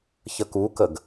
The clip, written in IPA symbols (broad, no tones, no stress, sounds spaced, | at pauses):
ç ə k u k ə ɡ